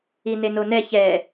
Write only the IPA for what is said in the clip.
i n e n o n ɛ ç ɛ

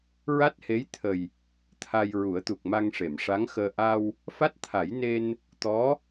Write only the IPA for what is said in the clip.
ɹ a˦˥ t̚ h e˧˥ j t̪ʰ ə˨˩ j | t̪ʰ a˧ j ɹ u˨˩˦ ə̯ t̪ u˨˩ k̚ m a˧ ŋ ʂ e˨˩˨ m ʂ a˧˥ ŋ x əː˧ ʔ a˧ w | f a˦˥ t̚ t̪ʰ a˨˩˦ j n e˧ n | t̪ ɔ˧˥

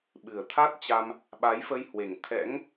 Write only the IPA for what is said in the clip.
ɓ ɨ˨˩ ə̯ t̪ʰ a˦˥ t̚ t͡ɕ a˧ m | ɓ a˨˦ j f ə˧ j h w e˨˩ ŋ t̪ʰ ɛ̰˧˥ ŋ

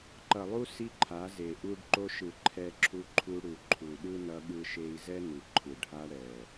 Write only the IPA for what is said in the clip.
ǃ ʌ˨ lˠ u˦ s i˦ ǃʰ a˨˦ z e˨ ʔ u˦ ɖ ǃ o˧ ʃ ɯ˨ ǃʰ ɛ˧ ǁʰ u˧ ǃʰ u˧ ɽ u˨ ǃʰ u˨ ɗ ɯ˦ n ʌ˧ ɠ ɯ˦ ʃ e˦ i̯ z ɛ˦ n u˨ ǃʰ ɯ˨ ɖʱ a˧ ɽ ɛ˨

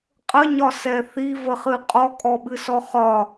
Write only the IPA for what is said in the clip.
qʼ ə ɲ ɒ s ɛ θ i v ə χ ɨ qʼ ɔ kʼ ɔ ɓ ɨ s ɔ χ ɒ

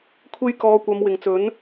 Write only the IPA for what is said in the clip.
kʷʰ e˨ j k ɔː˨˧ kʷ ɐ˨˧ m w ɪ˨˩ ŋ t͡s ɵ˨˥ n

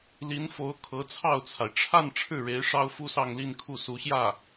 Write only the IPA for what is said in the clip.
l i˧˥ n f o˧˥ ʊ̯ kʰ ɤ˧˥ t͡sʰ ɑ˥˩ ʊ̯ t͡sʰ a˩ ɪ̯ ʈ͡ʂʰ a˥˧ n ʈ͡ʂʰ ɻ̩˥˩ ɻ e˧˥ ɪ̯ ʂ ɑ˥ ʊ̯ f u˥ s ɑ˥˧ ŋ l i˥˧ n kʰ u˥˩ s u˧˥ ɕ j ä˥˩

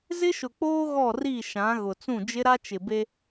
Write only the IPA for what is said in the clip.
z ɪ˦ ʃ ʊ˨ k͡p oː˦ ɣ ɔ˦˨ r i˦˨ ʃ ã˨˦ ɣ ʊ˨ t͡s ũ˦˨ d͡ʒ ɪ˦ ɾ a˦ t͡ʃ ɪ˨ b e˦

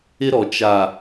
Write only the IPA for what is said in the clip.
ɪ˦ ɾ ɔ˨ t͡ʃ a˨

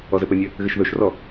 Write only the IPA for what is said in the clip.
ɔ z ɘ p ɘ nʲ ɘ | ɣ ɘ ʃ ð ɵ ʃ r ɔ

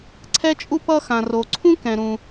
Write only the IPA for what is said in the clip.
ǀʰ ɛ˥ t͡ʃʼ u˥ p ʌ˥ x ã˩ r o˩ ǀʰ ũ˥ k ɛ̃˩ ɾ ũ˩

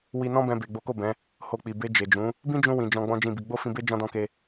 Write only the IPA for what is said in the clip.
w i˧ n ɔ̃˦ b ɛ̃˧ b e˨ ɡ͡b o˨˦ k o˦˨ b ɛ̃˨˦ | h o˧ k͡p i˨ b e˧ d͡ʒ e˨ d͡ʒ ũ˨˦ | b ĩ˦ d͡ʒ ũ˧ w ĩ˨ d͡ʒ ɔ̃˧ ɡ͡b ɔ̃˦ d͡ʒ ĩ˦˨ b i˧ ɡ͡b o˦ f ĩ˧ b e˦ d͡ʒ ɔ̃˧ d ɔ̃˧ k e˧

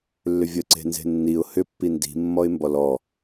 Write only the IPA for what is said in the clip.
lː ʏ vʲ ə ǀ e̤ n z e̤ nː i ʊ̯ h ʏ pː i n d i̤ mː ɔ ɪ̯ m b ɔ l ɔ

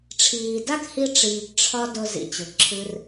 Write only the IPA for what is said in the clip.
ʈ͡ʂʰ iː˨ d a˦ k h i˦ ʈ͡ʂ iː˨ ɡ ʈ͡ʂʰ ɒ˦ d ʊ˧ z ḭ˧ t͡ɕ ʊ˨ ǁʰ ɨ˦ r

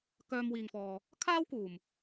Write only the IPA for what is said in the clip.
k œː˧ m w iː˨ ŋ f ɔː˨ | kʰ aː˥ w k uː˨˩ m

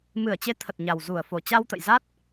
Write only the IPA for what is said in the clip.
m ɨ˧˩ ə̯ t͡ɕ e˨˦ t̪ʰ ə˨˩ t̚ ɲ a˨˩ w z u˧˩ ə̯ f o˧˩ t͡ɕ a˧ w t̪ ə̰˧˨ j z a˦˥ t̚

